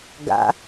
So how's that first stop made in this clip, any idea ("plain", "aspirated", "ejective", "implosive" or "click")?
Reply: plain